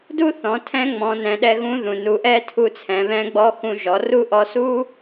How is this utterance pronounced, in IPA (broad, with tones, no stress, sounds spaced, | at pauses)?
d u˥ θ ɔ̃˩˧ tʰ ɛ̃˧˥ ŋ͡m ɔ̃˩˧ n ɛ̃˩˧ ɗ ɛ˧ ɣ ũ˧˥ ð ũ˩ n u˩˧ ʔ ɛ˥ tʰ u˧ t͡sʰ ɛ̃˩˧ β ɛ̃˧˥ ɡ͡b ɔ˧˥ x ũ˧ ʒ ɔ˩˧ r u˥ ʔ ɔ˧˥ s u˥